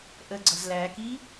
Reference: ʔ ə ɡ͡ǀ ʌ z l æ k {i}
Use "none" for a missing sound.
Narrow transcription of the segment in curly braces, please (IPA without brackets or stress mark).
i